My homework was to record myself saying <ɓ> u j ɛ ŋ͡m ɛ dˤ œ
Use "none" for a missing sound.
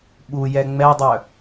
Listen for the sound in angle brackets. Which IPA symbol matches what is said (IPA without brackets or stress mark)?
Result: ɓ